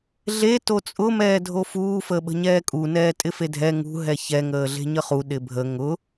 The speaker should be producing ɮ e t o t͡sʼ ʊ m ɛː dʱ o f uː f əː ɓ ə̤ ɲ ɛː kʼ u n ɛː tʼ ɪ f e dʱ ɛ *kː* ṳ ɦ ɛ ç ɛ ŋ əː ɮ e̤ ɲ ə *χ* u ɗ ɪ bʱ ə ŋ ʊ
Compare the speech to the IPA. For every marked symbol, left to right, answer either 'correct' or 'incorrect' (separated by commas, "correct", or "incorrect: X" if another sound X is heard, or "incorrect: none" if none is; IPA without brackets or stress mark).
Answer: incorrect: ŋ, correct